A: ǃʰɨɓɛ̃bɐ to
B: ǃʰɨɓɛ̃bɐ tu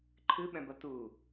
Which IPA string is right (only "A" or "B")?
B